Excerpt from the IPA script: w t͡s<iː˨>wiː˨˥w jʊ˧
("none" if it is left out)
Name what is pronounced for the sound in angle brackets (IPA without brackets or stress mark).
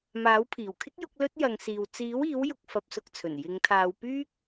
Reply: iː˨˥